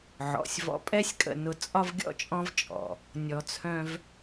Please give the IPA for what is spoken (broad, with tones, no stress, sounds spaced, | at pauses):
ʕ ɔ̰˩ sʲ v ɔ̰˧ pʼ ɛ˥ sʲ kʼ ə̰˧ n ʊ˧ t͡sʼ ɒ˥ v ɡʲ ɔ̰˥ t͡ʃʼ ɔ̃˥ v t͡ʃʼ ɔ̰˩ | nʲ ɔ˧ t͡sʰ œ̃˥ v